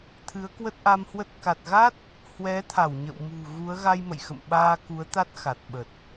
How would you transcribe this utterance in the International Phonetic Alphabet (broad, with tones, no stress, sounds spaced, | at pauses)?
t̪ʰ ɨ˨˦ ə̯ k w ə˦˥ t̚ ʔ a˧ m h w ə˦˥ t̚ k a˨˩ t̚ ɣ a˦˥ t̚ | h w ɛ˨˦ t̪ʰ a˧˩ w ɲ ə̰˧˨ w m ṳ˨˩ ɣ u˨˦ ə̯ ɣ a˧ j m ə̰˧˨ j x ə̰˧˨ m ɓ aː˧ k u˨˦ ə̯ t̪ a˦˥ t̚ x a˨˩ t̚ ɓ ə˨˩ t̚